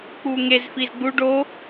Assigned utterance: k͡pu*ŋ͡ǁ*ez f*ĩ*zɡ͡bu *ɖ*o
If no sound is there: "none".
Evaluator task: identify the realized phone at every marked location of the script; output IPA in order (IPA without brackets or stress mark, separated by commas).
ŋ, i, ɖ